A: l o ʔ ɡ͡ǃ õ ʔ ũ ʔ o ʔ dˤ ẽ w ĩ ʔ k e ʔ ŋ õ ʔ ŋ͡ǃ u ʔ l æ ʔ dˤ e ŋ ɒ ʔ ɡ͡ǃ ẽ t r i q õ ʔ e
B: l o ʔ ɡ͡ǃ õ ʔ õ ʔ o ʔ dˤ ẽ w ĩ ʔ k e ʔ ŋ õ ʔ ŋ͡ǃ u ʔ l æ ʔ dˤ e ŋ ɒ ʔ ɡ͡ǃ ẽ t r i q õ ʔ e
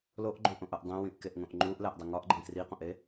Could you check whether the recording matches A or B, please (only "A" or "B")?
B